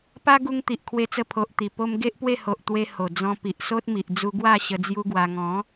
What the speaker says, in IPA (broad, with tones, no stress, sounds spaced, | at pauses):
p a˦ ɡ u˧ ŋ t̪ i˨ ʔ kʰ w e˧ t͡s ə˧ pʰ o˨ ʔ t̪ i˨˩ p o˧ m ɡ e˦ ʔ p w e˥˧ h o˨ ʔ t̪ w e˧ h o˨˩ d͡z ɔ̃˧ p i˨ ʔ s o˦ t̚ m i˨ ʔ d͡z u˧ ɡ w a˥˧ ɕ ə˧ d͡z j u˦ ɡ w a˧ ŋ ɔ̃˨˦